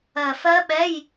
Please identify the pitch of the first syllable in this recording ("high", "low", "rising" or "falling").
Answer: low